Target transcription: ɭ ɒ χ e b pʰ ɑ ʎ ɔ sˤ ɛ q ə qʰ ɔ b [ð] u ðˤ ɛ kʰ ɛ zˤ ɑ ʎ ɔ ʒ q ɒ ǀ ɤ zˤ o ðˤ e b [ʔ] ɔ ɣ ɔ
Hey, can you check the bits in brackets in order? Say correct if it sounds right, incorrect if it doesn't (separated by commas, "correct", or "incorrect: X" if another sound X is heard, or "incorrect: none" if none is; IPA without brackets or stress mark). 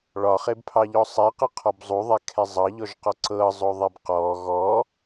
incorrect: zˤ, incorrect: q